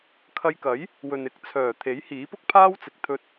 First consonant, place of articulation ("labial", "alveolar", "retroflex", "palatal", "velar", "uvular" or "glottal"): velar